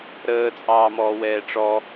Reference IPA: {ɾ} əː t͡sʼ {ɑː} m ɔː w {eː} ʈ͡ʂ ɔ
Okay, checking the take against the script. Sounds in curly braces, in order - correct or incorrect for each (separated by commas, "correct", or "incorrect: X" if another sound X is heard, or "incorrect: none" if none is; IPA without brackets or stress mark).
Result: correct, correct, incorrect: ɛː